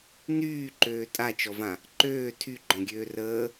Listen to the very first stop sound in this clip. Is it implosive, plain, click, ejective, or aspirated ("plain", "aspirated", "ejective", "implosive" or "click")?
click